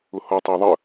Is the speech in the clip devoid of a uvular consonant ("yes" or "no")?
yes